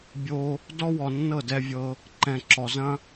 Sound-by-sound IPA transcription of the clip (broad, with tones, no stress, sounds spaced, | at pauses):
bʲ o˧ | d ɔ˦ w ɔ˨ nː ɤ˦˨ d ɛ˧ vʲ ɤ˧ | ǃ ɛ̃˨ ǁ ɔ˨ z ɐ̃˦